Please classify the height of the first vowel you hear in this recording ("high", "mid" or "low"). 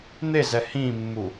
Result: mid